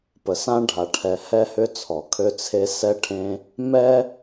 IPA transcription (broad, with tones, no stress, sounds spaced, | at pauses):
p ə˨ s ã˦ ɖʱ a˨ ʈʰ ɛ˨ h ɛ˦ h ʏ˦ t͡sʰ ɔ˨ kʰ ø˦ t͡sʰ e˦ s ɛ˦ ʈʰ ẽ˦ | m ɛ˦